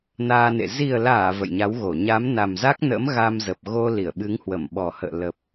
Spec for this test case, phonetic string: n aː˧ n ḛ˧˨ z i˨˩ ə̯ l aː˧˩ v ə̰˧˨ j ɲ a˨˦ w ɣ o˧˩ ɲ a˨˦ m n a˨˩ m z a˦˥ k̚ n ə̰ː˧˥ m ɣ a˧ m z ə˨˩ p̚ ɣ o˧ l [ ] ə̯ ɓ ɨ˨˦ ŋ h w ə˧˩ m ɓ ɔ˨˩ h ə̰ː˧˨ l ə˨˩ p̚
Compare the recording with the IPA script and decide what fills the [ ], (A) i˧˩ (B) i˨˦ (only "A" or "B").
A